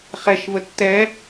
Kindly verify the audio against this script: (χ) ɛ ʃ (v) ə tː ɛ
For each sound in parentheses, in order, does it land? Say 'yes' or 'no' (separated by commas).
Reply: yes, yes